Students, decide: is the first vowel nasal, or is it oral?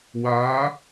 oral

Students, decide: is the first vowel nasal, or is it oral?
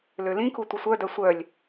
oral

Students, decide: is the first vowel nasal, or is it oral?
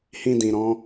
nasal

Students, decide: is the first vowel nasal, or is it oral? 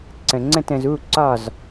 nasal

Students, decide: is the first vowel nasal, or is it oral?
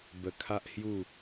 oral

